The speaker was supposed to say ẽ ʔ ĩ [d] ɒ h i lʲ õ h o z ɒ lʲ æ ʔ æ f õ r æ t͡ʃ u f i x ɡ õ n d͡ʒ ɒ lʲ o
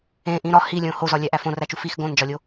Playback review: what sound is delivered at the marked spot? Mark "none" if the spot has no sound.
ɾ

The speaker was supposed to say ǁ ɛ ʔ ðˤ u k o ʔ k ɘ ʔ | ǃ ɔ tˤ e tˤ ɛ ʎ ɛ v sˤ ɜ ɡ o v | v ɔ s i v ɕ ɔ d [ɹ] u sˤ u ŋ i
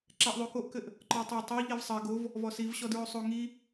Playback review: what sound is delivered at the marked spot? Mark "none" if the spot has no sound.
ɹ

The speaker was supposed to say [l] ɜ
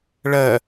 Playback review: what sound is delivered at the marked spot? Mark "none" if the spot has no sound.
ɭ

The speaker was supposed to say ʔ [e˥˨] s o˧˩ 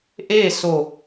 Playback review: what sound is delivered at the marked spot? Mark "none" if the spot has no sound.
eː˥˨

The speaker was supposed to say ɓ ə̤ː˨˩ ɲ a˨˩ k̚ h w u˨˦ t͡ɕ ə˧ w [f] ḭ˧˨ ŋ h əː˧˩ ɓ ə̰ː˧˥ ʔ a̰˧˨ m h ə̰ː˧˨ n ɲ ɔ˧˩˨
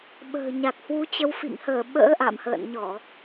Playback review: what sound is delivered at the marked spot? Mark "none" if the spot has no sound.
f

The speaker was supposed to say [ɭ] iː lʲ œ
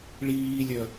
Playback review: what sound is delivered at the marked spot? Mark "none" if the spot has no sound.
ɭ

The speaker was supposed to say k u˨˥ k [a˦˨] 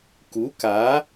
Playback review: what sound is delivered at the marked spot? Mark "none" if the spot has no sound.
a˨˥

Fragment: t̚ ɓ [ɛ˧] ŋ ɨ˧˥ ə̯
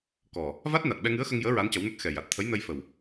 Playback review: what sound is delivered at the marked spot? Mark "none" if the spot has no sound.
ɛ˧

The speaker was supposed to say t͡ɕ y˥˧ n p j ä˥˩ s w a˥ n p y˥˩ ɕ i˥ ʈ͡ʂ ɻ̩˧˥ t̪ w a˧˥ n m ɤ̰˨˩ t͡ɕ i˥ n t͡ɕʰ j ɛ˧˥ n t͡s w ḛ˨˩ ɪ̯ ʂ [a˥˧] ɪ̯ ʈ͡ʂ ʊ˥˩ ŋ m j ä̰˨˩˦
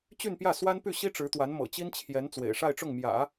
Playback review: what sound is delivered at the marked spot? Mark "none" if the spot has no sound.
a˥˧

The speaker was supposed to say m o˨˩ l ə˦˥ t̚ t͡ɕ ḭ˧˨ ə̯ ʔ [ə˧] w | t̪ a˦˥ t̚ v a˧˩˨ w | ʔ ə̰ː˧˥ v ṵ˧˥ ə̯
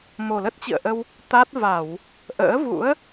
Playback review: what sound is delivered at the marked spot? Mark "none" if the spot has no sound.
ə˧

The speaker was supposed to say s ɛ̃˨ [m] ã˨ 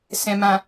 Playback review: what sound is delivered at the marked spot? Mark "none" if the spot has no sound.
m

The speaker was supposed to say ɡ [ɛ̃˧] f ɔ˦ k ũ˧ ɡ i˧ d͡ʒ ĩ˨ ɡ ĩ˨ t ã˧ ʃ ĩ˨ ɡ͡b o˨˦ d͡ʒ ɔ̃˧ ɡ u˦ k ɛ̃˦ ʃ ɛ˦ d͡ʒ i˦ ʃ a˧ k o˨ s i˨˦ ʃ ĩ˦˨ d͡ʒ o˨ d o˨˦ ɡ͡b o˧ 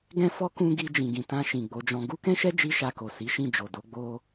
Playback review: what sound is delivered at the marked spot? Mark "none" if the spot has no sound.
ɛ̃˦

